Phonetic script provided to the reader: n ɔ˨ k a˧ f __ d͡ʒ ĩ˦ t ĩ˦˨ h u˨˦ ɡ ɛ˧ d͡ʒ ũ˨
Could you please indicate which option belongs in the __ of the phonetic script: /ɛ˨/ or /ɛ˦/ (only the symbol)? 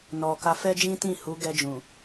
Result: ɛ˦